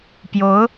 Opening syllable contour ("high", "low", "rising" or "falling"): rising